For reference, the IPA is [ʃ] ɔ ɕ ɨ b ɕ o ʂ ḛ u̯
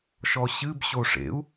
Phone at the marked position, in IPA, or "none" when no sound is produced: ʃ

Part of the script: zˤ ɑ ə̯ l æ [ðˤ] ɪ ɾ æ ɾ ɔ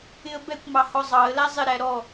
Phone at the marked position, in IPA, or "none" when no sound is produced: zˤ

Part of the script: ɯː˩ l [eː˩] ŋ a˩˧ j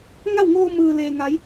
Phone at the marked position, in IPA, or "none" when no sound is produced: eː˩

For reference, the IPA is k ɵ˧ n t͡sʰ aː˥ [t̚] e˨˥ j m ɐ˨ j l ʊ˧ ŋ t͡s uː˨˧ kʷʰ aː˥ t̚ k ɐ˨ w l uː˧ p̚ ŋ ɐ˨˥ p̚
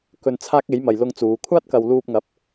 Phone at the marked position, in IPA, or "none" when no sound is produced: k̚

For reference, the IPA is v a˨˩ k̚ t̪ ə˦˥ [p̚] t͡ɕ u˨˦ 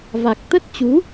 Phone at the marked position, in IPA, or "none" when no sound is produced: t̚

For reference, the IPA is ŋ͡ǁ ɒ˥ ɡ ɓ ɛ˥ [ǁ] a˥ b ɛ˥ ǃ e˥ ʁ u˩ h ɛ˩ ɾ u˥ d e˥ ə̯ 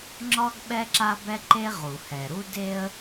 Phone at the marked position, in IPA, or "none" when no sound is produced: ǁ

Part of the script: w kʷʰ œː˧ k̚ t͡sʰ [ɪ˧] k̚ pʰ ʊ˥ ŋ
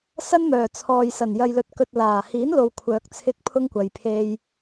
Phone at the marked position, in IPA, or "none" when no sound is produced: ɪ˥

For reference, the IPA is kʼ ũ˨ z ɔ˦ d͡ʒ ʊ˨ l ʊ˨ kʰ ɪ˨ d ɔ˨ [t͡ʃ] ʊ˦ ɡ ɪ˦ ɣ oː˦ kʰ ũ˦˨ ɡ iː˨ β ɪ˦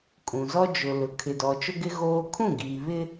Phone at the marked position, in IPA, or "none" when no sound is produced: t͡ʃ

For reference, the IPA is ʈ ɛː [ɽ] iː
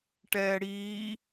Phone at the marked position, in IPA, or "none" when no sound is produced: ɽ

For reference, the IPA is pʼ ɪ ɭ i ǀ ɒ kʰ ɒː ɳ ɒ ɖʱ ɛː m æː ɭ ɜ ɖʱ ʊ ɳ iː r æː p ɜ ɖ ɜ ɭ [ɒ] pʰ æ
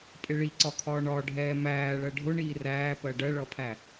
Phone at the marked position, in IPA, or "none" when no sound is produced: ʌ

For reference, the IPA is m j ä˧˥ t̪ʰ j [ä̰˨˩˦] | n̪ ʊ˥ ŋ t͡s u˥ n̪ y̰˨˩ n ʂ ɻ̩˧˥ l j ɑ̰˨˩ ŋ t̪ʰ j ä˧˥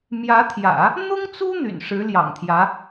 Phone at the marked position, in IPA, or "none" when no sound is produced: ä̰˨˩˦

